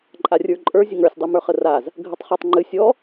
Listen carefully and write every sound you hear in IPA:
ǃʼ a rʲ ə˞ ǃʼ ə˞ zʲ ə ŋ ə˞ sʲ dˤ ʉ m ə˞ χ ə r a z | ɡʱ ə tˤ χ ə˞ tˤ ŋ͡ǃ ɨ sʲ ɔ

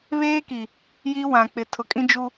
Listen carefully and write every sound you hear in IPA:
β eː˦ k i˨ | j i˦ w ã˨ k͡p ɪ˨ tʰ ʊ˨ kʼ ĩ˦ d͡ʒ u˦

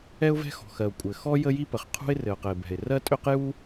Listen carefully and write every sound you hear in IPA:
ɛ˥ ʊ̯ v ɛ̤˥ x ɔ̤˩ x ɜ˩ ʊ̯ kʷʼ ɘ˩ x ɔ˥ j ə˥ j i˥ p ə˩ χ qʰ ṳ˥ ɪ̯ r ɘ˩ ʊ̯ q ɘ˩ ɪ̯ b ɛ̤˩ ɪ̯ r ɜ˥ tʼ ø˥ q j u˥

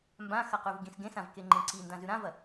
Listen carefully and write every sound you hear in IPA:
m b ã x ɐ q ʉ v ɡ ĩ s ɡ ẽ s ã v k e ŋ͡ǃ ẽ ǀ i n d ã z ʉ ɾ ã v ɐ

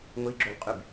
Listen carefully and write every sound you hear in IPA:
ŋʷ i ɡ͡ǁ o l qʼ y b

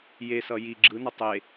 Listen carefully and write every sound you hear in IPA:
j e s ʌ j i ɡ͡ǁ ɯ n ʌ tˤ e

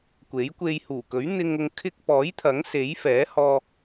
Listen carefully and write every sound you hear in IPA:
kʷ e˨˥ j kʷ e˧ j h uː˨˩ k ɵ˨˥ ɥ n̪ ɪ˧ ŋ ʊ˧ ŋ kʰ ɪ˧ k̚ p ɔː˨˥ j t̪ʰ ɐ˨˥ ŋ s e˨˥ j f ɛː˨˥ h ɔː˧

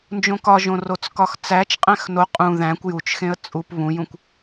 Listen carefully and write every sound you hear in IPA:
n d͡ʒ õ k ɒ ʒ õ r o t͡s k ɒ x t͡s æ t͡ʃ qʼ æ̃ x n o qʼ ũ ð æ̃ kʷ j u t͡ʃ x ẽ ə̯ t͡sʼ u p β ũ j ũ kʷ

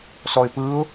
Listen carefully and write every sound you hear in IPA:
s ɔ ɪ̯ p ɯ ʊ̯

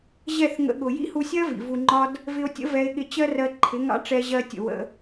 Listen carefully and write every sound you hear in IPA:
ʑ ɛ˦˨ θ ŋ ə̰˧ ɠ ʊ˨ j ḭ˦ h u˧ sʲ ɜ˦ v ḭ˨ v u˧ ŋ͡ǃ ɒ˦ d | v ɪ˧ o̯ tʲ ə̰˦ v ɛ˧ e̯ ɠ ɪ˧ t͡ɕ ɜ˦ r ɜ˧ ǃʰ ɪ˨˦ ŋ ɑ̰˦ ʈ͡ʂ ɛ˧ ʑ ɜ˧ tʲ ə̰˨ w ə̰˧

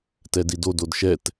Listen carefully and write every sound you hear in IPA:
t ɛ d i d o d o d ʃ ɛ t

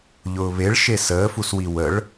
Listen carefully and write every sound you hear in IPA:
ʎ ʊː β e ɭ ʃ e s əː f u s w i w ə ɭ

